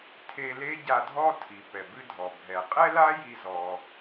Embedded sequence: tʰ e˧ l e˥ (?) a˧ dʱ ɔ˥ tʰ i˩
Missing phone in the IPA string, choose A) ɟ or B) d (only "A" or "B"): A